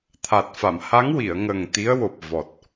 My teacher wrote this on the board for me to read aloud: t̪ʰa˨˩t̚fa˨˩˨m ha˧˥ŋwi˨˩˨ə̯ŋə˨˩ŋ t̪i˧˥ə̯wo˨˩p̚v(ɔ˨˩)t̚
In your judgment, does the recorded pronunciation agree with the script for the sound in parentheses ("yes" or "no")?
yes